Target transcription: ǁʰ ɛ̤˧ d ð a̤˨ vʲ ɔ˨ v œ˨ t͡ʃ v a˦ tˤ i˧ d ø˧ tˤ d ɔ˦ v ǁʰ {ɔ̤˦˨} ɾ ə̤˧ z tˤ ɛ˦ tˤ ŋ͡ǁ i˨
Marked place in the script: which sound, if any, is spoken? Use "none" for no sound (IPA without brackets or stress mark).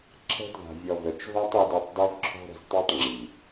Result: ɔ̤˦